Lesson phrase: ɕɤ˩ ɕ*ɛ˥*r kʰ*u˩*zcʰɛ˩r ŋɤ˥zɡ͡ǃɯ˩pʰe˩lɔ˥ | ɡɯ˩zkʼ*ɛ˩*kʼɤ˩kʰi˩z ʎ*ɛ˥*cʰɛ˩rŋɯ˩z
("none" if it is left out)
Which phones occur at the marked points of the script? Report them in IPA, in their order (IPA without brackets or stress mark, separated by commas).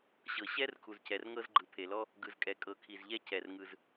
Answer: ɛ˥, u˩, ɛ˩, ɛ˥